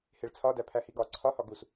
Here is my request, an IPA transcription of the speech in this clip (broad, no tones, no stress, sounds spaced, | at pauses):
h e ɭ t͡sʰ ɒ d æ pʰ æ h i ɡ ɒ ǀʰ ɒ h ɒ ɡ u s